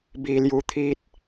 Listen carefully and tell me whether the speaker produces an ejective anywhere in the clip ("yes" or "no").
no